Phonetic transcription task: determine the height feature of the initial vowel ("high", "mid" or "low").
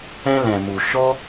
mid